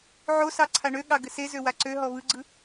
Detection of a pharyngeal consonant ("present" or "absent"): present